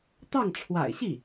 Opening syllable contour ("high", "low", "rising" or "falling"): falling